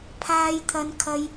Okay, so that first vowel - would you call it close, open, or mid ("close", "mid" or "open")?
open